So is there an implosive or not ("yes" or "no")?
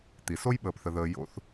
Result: yes